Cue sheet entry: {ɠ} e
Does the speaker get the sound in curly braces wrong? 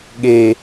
no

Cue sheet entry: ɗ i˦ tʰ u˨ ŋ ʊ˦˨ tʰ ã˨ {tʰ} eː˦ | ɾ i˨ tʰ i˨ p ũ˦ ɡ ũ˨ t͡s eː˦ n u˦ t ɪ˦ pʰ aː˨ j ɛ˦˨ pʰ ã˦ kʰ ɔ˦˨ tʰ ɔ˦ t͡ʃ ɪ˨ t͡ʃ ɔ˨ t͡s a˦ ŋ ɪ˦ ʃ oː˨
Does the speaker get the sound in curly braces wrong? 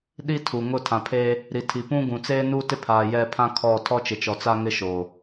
yes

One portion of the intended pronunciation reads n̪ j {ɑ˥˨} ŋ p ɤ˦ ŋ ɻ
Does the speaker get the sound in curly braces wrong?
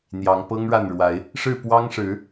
yes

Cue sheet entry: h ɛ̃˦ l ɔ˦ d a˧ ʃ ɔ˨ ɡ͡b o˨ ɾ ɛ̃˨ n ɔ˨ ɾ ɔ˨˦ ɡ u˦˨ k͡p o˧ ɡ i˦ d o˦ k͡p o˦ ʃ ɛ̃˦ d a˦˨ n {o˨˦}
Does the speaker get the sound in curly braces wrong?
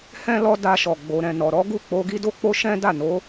no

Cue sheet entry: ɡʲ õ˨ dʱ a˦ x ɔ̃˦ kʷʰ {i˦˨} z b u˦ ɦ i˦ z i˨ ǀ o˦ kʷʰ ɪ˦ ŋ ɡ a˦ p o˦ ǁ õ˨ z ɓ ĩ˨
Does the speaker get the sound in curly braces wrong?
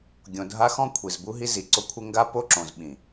yes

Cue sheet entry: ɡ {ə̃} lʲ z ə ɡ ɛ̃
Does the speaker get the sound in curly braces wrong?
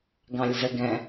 yes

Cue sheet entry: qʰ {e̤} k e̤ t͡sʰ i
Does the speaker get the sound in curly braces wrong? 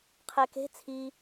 yes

